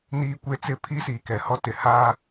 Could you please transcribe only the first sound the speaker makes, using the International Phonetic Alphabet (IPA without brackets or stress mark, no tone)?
n